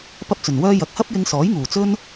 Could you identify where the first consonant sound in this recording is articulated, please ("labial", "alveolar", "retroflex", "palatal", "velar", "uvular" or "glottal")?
labial